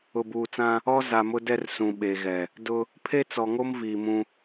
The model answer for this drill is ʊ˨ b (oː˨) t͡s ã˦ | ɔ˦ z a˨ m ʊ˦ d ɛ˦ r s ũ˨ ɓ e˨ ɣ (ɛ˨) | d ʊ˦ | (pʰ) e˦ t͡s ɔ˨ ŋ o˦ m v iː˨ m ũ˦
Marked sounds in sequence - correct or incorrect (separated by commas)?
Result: incorrect, correct, correct